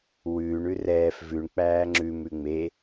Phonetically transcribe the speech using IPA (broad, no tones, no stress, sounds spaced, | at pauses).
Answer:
w ʉː ɳ ʉ r ɛː f v ʉ ɳ k͡p æː ŋ͡ǁ ʉ m ʉ ŋ͡m e